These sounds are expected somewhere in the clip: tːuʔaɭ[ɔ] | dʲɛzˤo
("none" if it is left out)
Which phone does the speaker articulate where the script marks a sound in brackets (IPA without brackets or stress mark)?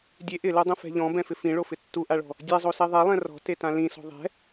ɔ̤